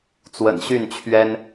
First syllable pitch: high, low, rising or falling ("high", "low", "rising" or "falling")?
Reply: low